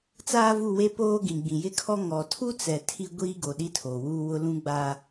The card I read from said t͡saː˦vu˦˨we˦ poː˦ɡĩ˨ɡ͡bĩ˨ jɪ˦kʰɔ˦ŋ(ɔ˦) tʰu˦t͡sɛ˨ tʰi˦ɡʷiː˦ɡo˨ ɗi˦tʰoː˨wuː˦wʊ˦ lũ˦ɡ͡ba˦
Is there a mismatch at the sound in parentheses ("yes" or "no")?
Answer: yes